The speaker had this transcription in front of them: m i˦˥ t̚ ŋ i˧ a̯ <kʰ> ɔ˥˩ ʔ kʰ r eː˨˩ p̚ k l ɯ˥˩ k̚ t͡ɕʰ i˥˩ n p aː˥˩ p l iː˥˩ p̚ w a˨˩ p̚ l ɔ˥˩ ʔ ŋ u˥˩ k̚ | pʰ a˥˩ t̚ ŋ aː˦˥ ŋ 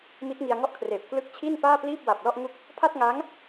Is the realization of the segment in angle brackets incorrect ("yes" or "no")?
yes